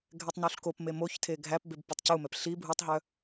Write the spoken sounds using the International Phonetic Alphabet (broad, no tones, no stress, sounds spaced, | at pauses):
ɡʱ ɛ tˤ n ʉ ɬ k o p m e m o ç tʰ e ɡʱ æ p b e b p o tˤ c u m ɛ p ɬ i bʱ u tˤ ɦ œ